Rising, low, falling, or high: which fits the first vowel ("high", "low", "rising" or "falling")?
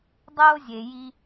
high